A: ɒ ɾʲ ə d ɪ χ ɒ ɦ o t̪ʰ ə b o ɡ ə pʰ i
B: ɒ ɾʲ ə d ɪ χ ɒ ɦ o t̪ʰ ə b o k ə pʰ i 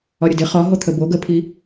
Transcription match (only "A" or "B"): A